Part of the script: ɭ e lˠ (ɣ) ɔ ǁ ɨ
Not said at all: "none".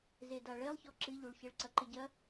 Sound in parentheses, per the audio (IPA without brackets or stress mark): ç